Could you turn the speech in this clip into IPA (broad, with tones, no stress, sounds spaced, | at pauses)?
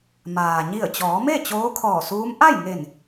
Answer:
m aː˩ ɲ i˧˩ ə̯ t͡ɕ ɔː˩˧ m e˥˨ t͡ɕ oː˧˥ kʰ ɔː˧˩ s uː˧˥ m ʔ a˥˨ j ŋ e˧˩ n